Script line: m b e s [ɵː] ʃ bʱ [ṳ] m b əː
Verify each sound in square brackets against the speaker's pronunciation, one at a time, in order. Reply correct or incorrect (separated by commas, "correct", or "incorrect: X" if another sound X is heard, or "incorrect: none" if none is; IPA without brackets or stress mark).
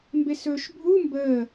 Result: correct, incorrect: u